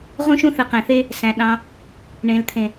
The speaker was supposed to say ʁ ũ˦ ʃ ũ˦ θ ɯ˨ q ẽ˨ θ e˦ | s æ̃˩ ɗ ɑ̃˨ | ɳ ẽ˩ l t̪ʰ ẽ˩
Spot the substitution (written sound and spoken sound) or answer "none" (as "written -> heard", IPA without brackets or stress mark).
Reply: e˦ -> e˥